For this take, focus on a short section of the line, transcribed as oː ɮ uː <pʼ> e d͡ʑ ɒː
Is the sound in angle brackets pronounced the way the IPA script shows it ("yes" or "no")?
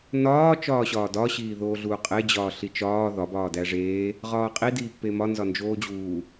no